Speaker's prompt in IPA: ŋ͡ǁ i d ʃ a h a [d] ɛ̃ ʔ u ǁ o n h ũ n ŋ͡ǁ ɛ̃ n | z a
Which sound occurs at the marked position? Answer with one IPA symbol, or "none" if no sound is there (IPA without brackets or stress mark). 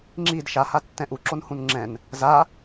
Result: tː